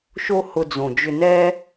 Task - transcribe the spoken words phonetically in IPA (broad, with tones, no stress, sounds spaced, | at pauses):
ʃ o˦ h ʊ˧ d͡z õ˨ d͡ʒ ʏ˧ n ɛ˦